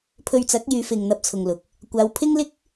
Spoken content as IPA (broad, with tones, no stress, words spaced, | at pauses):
pʰɵ˧ɥt͡sɐ˨˥k̚ jyː˨˧fɪ˨ŋ n̪ɐ˧p̚t͡sʰʊ˨ŋlʊ˨k̚ | kʷaː˨˧wpʰɪ˥ŋlɪ˥k̚